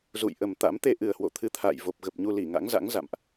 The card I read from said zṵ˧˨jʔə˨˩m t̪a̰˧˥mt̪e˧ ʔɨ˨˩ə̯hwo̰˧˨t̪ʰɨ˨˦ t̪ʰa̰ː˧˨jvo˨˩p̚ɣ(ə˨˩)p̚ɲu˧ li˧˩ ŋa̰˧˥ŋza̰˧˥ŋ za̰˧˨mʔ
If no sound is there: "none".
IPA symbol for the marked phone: ə˨˩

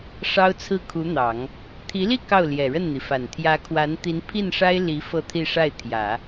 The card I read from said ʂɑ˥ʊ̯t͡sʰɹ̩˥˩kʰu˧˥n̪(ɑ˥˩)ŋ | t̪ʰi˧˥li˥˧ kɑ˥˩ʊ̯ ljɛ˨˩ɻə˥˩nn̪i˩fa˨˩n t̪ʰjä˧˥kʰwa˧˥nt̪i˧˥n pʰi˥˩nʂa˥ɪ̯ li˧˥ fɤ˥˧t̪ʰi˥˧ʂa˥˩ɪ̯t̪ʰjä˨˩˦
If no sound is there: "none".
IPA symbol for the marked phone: ɑ˨˩˦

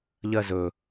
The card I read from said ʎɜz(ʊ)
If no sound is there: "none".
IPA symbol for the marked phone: ɵ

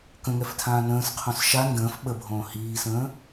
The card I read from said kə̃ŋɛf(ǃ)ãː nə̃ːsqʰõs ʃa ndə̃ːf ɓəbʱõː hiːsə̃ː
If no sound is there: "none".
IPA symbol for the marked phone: tʰ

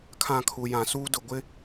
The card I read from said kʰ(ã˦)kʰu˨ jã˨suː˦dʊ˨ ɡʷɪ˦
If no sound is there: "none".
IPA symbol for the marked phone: ã˦˨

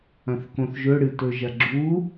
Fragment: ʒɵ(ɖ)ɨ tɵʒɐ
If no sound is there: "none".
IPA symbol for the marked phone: ɽ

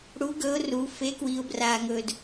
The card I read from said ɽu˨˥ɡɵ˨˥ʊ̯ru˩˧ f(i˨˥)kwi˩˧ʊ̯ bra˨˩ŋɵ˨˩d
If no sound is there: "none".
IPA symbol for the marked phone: e˨˥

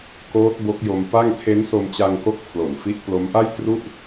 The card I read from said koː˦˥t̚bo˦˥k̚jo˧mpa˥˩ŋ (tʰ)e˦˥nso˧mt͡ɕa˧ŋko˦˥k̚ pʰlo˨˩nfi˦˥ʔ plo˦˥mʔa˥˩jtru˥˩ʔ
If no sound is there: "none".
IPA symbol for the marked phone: tʰ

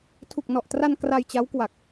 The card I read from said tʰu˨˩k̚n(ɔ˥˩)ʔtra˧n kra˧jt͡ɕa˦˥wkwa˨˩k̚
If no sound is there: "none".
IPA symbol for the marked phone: ɔ˨˩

